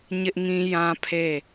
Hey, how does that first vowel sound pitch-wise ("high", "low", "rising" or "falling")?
high